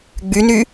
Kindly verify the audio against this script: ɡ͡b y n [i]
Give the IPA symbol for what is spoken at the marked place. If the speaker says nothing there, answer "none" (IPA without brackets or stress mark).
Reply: y